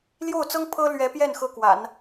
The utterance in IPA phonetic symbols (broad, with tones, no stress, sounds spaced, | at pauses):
l j o˥˩ ʊ̯ t͡s ɤ˥ ŋ pʰ ɤ˥ l ɥ ɛ˧˥ p j ɛ˥˩ n x ɤ˥ k w a̰˨˩˦ n